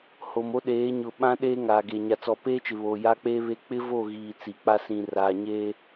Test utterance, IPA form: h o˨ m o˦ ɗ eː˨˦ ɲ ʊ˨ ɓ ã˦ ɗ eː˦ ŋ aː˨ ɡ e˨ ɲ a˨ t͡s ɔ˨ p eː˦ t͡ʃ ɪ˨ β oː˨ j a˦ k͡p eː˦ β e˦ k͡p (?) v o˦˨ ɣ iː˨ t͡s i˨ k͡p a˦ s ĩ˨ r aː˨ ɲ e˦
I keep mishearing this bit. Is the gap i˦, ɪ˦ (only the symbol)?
ɪ˦